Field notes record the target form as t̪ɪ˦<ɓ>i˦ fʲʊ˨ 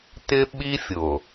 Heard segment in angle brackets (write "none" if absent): ɓ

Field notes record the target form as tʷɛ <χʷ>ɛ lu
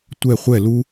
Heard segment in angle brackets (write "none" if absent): χʷ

